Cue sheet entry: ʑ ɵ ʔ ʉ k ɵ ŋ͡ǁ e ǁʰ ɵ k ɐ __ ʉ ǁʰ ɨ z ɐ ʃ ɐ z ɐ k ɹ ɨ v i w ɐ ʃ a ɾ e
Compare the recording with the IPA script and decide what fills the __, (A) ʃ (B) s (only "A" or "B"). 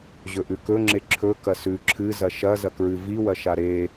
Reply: B